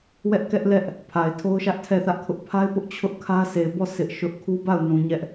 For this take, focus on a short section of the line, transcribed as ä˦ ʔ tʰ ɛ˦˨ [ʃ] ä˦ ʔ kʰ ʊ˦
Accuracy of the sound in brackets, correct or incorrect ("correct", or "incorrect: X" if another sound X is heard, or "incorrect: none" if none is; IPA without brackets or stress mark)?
incorrect: θ